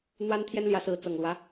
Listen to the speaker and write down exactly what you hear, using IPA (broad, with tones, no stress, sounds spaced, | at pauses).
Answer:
n̪ w a˦ n t̪ʰ j ɛ˦ n l j ä˨˦ s ɹ̩˨˦ t͡s ɤ˨˩ ŋ l w ä˦